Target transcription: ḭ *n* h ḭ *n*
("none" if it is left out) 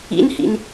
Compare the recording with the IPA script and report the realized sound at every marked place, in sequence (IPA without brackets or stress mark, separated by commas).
n, n